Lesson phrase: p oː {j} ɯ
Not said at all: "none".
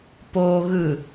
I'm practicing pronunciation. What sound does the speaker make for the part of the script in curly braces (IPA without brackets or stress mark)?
ɣ